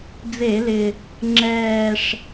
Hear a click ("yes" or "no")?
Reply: yes